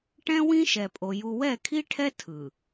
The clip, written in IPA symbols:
ʈɛ̃˦wĩ˦ʃɛ˨pʼo˨ ju˨wɛ˦˨kʰi˦ʈʰɛ˦ tʰɯ˨

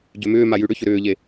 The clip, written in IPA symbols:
ɟømʏːma jʉɽʏçʏ ɾʏːʎe

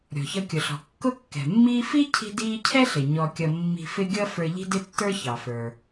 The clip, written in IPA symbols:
ɾʲɔ̤˩çʌ˧kʲʊ˩ɬɔ̤˩ kːʊ˥kːɛ̤˩mːiː˥ fi˥ cʰi̤˥diː˥ cʰɛ˥ɬɪ˩ ɲɔ˧kʲʌ˧ mːi̤˧fɪ˥ ɡʲʌ˥ fə˞˧ʎi̤˥dɪ˥tːə˞˥ çɑ˩fə˞˩

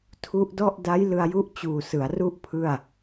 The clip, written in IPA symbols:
tʰu˦˥ʔdɔ˥˩ʔ da˦˥jlɯ˧a̯ju˦˥ʔt͡ɕuː˨˩ sɯ˩˦a̯ru˥˩ʔ pʰɯ˥˩a̯

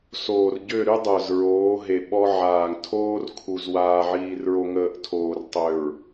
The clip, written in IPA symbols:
soː˨rɟø˦˨ɾy˦ dˤœ˨zɹoː˨˦ ɦe˨ɓɔ˦ ʕaː˨ŋtʰoː˦rkʰu˨z waː˨ʕiː˨rɹo˨ŋəː˨ʔ tʰoː˨rtˤø˨ɹ

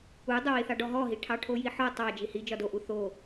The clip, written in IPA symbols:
udˤɵwiθɑ ɖɔɦɔɦi ʈʰɑʈʰojiħɔ tˤɑ d͡ʒihi d͡ʒɒdoʔu θo

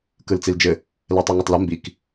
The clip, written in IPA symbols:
kɯlt͡sild͡ʒɘ | lɛtˤɛŋɯtˤlɘ mbik

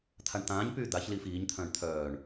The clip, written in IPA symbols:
t̪ʰaɳt̪ãːɲpyː d̪aç liːfiːɲt̪ʰœ̃ːɳ t̪ʰœːɳ

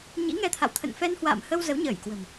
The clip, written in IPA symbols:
ɲḭ˧˥ŋɛ˧t̪ʰa̰˧˨w t̪ʰə̰˧˨n fɛ˧nhwa̰ː˧˨mhə˧w zə˨˦wɲəː˧˩j kwə̤˨˩m

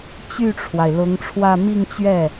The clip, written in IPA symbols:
t͡ɕy˥˩ʈ͡ʂʰwa˩ɪ̯ lʊ˧˥ŋʈ͡ʂʰwä˥˧ mi˥˧ŋt͡ɕɥɛ˥˩

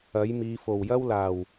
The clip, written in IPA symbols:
ɐ˨˥jmiː˨˧fo˨˩w jɐ˥wlaː˨˩w

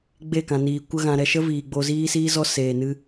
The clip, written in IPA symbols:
ɡ͡be˦˨kã˨niː˨ kʷə˧ɣã˨ɾɛ˨ʃə˦ viː˨ɡ͡bo˧ ziː˦siː˦zɔ˦ seː˨ nɨ˦

